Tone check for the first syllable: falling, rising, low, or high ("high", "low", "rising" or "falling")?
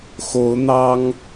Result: rising